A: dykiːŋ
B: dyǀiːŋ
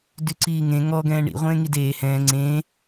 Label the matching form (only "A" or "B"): B